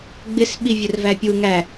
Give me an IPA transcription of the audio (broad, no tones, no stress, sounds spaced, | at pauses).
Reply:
ɡ͡b ɪ s ɓ i vʲ ʊ r v æ pʲ u ŋ æ